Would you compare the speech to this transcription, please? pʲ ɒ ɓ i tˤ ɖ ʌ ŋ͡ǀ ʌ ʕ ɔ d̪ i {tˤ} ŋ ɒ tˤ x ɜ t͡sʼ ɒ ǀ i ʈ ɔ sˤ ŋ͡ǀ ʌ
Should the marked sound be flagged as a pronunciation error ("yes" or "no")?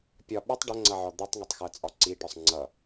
no